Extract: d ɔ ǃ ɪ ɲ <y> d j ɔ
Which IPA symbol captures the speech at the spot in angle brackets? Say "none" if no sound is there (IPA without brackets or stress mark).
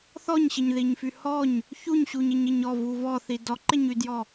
y